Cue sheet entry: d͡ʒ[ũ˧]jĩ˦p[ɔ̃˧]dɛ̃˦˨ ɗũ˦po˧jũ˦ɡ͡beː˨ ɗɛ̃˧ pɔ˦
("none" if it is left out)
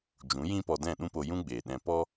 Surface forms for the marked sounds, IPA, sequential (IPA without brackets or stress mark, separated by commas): ũ˨˦, ɔ˧